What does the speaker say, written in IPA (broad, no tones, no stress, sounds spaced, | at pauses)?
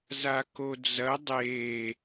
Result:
z a k o d͡z ɐ dˤ e